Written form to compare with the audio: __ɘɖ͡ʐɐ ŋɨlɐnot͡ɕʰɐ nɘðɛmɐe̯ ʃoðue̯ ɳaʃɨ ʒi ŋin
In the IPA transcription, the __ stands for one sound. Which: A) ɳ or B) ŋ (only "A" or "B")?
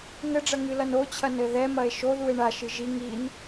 B